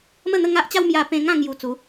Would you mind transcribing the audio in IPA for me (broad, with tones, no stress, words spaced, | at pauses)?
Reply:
mə˥˧n̪ə˥˧ŋa˦ʔt͡ɕa˦w mja˧pẽ˧ŋã˥˧ ŋju˧t͡su˨˦